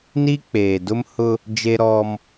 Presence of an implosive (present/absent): absent